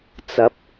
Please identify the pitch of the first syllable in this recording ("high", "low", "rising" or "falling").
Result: rising